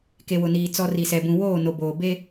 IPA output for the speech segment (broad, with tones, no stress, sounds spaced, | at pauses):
k e˨ w ʊ˨ n iː˨ t͡s ɔ˨ r i˨ s ɛ˨ b ũ˨ w oː˦˨ n o˨ b oː˨ b e˦